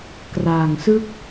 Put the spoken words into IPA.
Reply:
k r aː˨˩ ŋ s ɯ˥˩ k̚

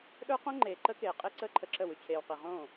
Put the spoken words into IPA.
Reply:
ɗ ə˞˦ q õ˦ ŋ͡ǃ eː˨ ǃ ə˦ k eː˨ qʼ e˦ ǀ əː˦ ǃʰ ə˧ ǁ ə˦˨ w ʉ˧ t͡ɕʰ eː˨ w q i˨ ʁ õː˦˨

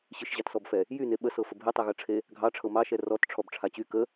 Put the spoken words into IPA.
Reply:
ɕ ɨ ʃ ʑ ɑ t s ɔ b f ɛ | j y n e ɓ ə s ɤ f ə bʱ e tˤ e ɣ ɤ ʈ͡ʂʰ e | ɡʱ ɑ ʈ͡ʂʰ ɤ m ɑ ʃ ɛ r ɔ t ʈ͡ʂʰ ɔ b ʈ͡ʂʰ a t͡ɕ y k ə

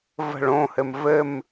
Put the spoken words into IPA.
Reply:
v ə̤ ɭ õ h ɘ m v ɘ m

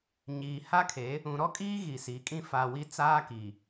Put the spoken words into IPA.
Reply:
ɲ iː˨ h a˦ kʰ e˨˦ | ũ˨ ɾ ɔ˦ kʼ iː˦ ɣ i˨ s i˨˦ kʼ ĩ˦ f a˨ w i˦ t͡s aː˦ k i˨

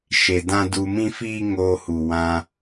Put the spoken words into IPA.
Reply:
ʃ e˨ d ã˦ d u˧ m ĩ˦ f iː˦ ŋ oː˧ h u˨ w ã˧

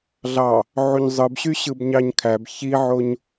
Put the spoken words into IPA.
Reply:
ɮ ɑ | ʕ u ɲ zˤ ɯ b ɕ y ɕ ɯ b ɲ ɑ ɲ kʰ æ b ç i ʕ o ɲ

